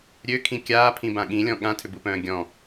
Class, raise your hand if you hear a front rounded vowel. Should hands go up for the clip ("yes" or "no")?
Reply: yes